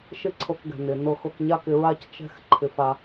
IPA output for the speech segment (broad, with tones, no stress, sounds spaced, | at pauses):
ʃ ɪ˥ ǀʰ ɤ˧ k ɡ ɛ̤˩ n ɪ˩ n ɤ˧ x ɤ˧ k ɲ a˥ k ɪ˧ ɹ a˥ c t͡ʃ ɛ̤˥ x ǃʰ ɪ˧ f a˧